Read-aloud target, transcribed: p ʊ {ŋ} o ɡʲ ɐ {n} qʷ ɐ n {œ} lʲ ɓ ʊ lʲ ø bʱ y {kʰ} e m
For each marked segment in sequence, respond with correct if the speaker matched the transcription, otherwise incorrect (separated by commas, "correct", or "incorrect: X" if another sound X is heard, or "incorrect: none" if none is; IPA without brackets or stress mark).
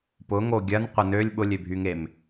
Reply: correct, correct, incorrect: ø, incorrect: ŋ